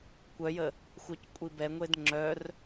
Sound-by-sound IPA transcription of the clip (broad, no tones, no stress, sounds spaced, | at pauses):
kʷ œ j ə | xʷ œ c kʷʼ i b ɛ ŋʷ e d ŋ͡ǁ œ r